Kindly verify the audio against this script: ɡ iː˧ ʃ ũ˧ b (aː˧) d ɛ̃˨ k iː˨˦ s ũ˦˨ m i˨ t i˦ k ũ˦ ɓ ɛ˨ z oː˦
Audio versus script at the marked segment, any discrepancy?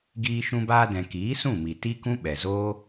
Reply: no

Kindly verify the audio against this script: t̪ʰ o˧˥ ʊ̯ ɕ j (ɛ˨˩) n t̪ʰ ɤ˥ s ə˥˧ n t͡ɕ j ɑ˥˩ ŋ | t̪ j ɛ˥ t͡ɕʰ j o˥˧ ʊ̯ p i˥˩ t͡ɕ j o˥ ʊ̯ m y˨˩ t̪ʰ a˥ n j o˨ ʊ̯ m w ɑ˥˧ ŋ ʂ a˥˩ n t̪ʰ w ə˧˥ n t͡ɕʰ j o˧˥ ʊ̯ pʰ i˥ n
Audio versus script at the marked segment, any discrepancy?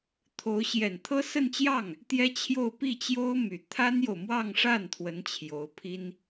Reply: no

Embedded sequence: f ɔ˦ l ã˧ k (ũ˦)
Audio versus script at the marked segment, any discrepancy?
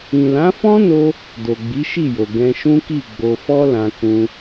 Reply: no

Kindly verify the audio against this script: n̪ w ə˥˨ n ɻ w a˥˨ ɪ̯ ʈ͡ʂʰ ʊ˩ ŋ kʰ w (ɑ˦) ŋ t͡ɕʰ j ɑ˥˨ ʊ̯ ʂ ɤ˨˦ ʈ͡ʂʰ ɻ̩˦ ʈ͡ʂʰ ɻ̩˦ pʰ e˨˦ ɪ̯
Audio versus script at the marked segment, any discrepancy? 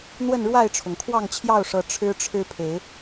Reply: yes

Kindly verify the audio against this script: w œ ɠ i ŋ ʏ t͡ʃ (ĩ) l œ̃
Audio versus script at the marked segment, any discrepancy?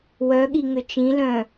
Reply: no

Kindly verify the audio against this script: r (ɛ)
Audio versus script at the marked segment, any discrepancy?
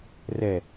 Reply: no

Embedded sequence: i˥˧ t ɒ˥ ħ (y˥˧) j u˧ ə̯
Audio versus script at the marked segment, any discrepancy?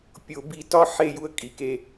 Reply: yes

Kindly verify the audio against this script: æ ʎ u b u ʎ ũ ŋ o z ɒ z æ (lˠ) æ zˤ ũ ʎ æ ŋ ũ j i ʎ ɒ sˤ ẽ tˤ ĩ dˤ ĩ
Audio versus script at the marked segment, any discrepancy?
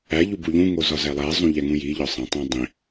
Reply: no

